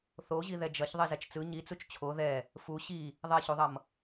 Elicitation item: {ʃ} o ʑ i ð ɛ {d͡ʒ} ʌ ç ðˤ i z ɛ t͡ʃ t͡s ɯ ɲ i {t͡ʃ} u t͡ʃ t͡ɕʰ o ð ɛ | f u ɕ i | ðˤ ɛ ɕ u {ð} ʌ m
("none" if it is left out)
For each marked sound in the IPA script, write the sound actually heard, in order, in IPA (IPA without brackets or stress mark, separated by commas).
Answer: θ, d͡ʒ, t͡s, ðˤ